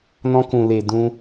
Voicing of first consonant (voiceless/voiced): voiced